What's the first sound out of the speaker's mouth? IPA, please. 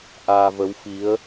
ʔ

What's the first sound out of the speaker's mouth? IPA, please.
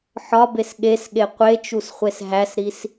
ħ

